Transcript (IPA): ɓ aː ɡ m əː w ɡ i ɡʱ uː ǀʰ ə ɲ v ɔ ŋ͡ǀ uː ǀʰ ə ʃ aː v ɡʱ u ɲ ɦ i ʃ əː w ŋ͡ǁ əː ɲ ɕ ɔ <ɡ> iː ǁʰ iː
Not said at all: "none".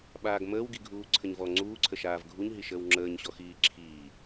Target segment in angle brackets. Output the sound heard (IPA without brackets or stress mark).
x